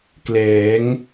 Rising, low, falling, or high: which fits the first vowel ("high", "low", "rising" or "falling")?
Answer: rising